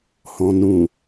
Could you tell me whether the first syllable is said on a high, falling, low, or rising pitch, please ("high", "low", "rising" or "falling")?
low